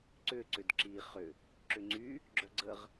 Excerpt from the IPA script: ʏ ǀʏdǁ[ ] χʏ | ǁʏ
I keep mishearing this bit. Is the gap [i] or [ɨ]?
i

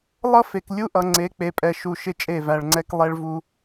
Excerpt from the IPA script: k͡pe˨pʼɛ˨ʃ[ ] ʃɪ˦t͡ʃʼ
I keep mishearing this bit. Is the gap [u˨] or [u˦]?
u˨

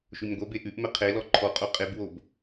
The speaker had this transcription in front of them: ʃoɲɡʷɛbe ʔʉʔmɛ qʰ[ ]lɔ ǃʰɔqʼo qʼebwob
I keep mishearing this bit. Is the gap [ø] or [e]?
e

